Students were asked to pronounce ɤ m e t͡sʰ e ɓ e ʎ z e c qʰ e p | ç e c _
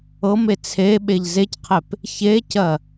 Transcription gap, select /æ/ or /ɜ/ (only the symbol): ɜ